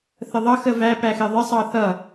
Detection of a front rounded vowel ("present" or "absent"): absent